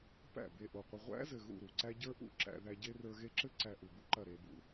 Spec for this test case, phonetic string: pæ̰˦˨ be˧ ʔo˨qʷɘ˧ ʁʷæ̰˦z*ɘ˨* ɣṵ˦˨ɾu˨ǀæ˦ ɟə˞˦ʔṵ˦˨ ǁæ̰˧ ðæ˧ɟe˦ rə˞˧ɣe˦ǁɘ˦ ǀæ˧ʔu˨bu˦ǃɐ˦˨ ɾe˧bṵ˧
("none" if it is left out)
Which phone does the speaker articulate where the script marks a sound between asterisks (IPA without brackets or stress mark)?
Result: ɘ˨